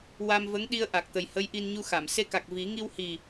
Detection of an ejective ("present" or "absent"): absent